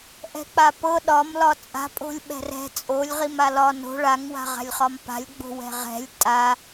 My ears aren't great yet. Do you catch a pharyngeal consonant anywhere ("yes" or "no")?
no